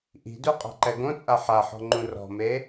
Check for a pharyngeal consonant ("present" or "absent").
present